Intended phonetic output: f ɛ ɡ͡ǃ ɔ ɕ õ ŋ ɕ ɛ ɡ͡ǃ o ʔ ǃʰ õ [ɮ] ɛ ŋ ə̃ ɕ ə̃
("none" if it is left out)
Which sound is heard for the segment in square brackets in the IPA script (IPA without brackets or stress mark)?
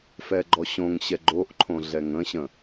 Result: ɮ